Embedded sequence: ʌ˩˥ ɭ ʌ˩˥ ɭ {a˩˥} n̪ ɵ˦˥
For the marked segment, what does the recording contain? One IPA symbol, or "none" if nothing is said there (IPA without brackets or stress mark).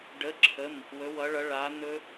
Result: a˩˥